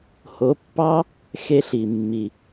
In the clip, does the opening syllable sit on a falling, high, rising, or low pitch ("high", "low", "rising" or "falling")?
rising